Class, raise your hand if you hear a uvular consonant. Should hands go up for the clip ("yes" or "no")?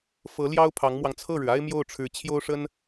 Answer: no